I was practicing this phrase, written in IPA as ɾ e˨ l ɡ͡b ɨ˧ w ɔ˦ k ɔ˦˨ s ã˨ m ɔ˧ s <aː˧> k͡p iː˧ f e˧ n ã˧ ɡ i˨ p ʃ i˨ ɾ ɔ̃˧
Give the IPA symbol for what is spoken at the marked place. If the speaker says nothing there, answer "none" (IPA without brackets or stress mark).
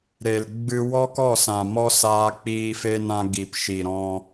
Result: aː˧